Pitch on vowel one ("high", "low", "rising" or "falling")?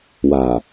low